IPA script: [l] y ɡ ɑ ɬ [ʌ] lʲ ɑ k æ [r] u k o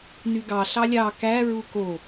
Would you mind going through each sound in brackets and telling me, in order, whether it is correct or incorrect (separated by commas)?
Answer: incorrect, incorrect, incorrect